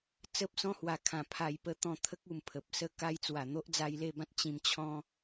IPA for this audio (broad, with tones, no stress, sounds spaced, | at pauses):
t͡s ə˦ p̚ s ɔ̃˦ h w a˨˩ kʰ ã˨˩ pʰ a˨˩ j p ə˧ t̪ ɔ̃˧ t̪ʰ ə˦ k̚ u˨˩ m pʰ ə˨ p̚ s ə˦ k a˧ j t͡s w a˨˩ n̪ o˦ ʔ d͡z a˧ j l e˥˧ b ã˦ t̚ t͡ɕ ĩ˧ m t͡ɕʰ ɔ̃˦